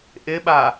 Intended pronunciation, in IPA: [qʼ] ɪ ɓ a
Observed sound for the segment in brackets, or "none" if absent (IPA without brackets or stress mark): ʔ